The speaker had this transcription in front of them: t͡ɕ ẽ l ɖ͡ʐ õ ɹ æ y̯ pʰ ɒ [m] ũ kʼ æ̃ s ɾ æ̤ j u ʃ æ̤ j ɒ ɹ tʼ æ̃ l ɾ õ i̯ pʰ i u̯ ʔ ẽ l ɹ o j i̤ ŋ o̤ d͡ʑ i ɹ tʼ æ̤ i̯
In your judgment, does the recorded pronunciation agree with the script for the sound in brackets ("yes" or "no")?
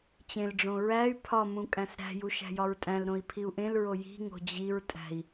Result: yes